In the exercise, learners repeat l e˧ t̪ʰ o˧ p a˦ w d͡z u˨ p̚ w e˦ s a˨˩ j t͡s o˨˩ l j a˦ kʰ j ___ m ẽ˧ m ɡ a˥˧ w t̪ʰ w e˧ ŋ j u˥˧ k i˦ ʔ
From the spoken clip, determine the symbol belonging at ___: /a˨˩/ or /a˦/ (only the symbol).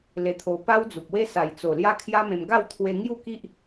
a˦